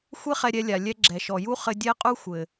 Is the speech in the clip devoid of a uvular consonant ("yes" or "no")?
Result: no